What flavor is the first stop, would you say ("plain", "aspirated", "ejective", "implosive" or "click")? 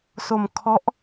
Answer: aspirated